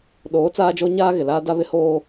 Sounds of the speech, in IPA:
ɗoː˨˦ t͡saː˦d͡ʒo˦ɲaː˦ɣɪ˨ laː˦da˦βɪ˦ hoː˦

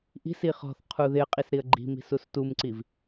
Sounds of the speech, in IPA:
ʔi̤si χɔ̤θ qʰuðɪə̯qʼis ɾiə̯ɡ͡ǃi̤mi̤s ustumǀiv

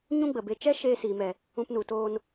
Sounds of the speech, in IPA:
ɲũ˦ɡ͡bə˨be˧ t͡ʃɛ˦ ʃeː˧siː˨mɛ˨ | ũ˧pnu˨toː˧n

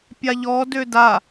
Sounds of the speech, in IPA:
pʲaʎɔ døda

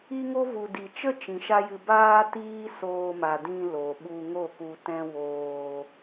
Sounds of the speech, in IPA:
i˦ŋo˦ vu˨di˨t͡ʃə˦ t͡ʃĩ˨ʃa˦jɨ˧ baː˦tiː˦ soː˧ma˨dĩ˧ lo˨ɓu˧ŋo˦˨ku˧ tɛ̃˦woː˧

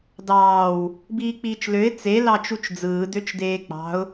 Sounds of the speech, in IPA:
dɑːw | biːk͡piːt͡ʃløɪ̯ t͡se lɑt͡ʃut͡ʃd͡zɯː døt͡ʃdeːk͡pɑ̤ʊ̯

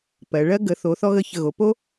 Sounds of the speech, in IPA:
pɜ˩˧ɭɜ˥ ɡə˩˧θo˩˧θɔ˧ɣə˧˩ çə˧˩ɣo˩˧po˥

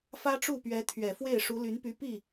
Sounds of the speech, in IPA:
fä˥ʈ͡ʂu˥˩pɥɛ˧˥ t̪ʰɥɛ˨˩fwe˥˩ɪ̯ ʂu˧˥ly˧˥npy˧˥ pi˥˩

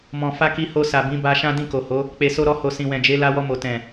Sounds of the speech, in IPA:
mɔ̃˨fa˧ ki˧ho˧sa˨ bĩ˨˦ba˧ ʃã˦dĩ˦˨ko˨ho˨˦ | k͡pe˧so˦ɾɔ˦ho˧ sĩ˨wɛ̃˨d͡ʒe˨˦ la˧wɔ˧mo˨ tɛ̃˨

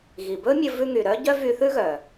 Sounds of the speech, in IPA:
ɣi˩bɵ˥mʲɵ˧ vʉ˧ŋy˩ɾœ˥ɟœ˥ vy˧θʉ˥ɣœ˩

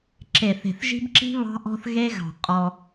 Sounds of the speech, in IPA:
ǁe˨θe̤˨θʒi̤˦bǁi̤˦ βɑ̤˦ʔɔ̤˦θɣe˦ɣɑ̤˨ qʼɔ˦

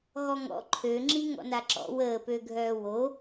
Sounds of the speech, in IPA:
ɣɔŋɔ̰ ǃʰøŋ͡ǁi ŋɔ̰naǁɔ̰ wəːpøɡʱœː wo

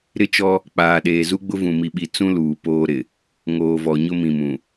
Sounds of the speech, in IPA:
ɾɪ˦t͡ʃɔ˦ | k͡paː˨ɗeː˨zu˦ɡ͡bʊ˦ vũ˨mi˨ɓi˨ t͡sũ˦ luː˨poː˦ɾɪ˨ | ŋoː˨vɔ˨ ɲʊ˦mĩ˨mũ˨

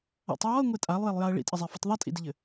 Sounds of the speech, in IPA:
a̰tˤ jɔə̯ŋʷe tʼalˠjelˠjaə̯ ɭḭtʼɘzˤefɘtˤ ðˤitʼḭdɪʎɘ

